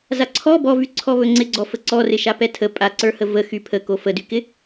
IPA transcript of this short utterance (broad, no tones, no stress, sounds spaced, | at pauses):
z a ǀʰ ɔ b ɔ v y ǀʰ ɔ β ɵ ŋ͡ǀ ɪ ɡ͡ǀ ɔ f ə ǀ ɔ r ɪ ʃ a p ɛ tʰ ə pʼ a ǀ ə˞ h ə v ə x y pʰ ə k o f ə d y k ɪ